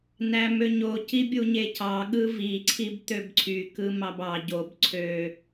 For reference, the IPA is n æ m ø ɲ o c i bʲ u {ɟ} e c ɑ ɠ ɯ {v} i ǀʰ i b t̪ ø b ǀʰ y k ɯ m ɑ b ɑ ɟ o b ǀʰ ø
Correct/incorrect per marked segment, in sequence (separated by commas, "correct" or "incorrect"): incorrect, correct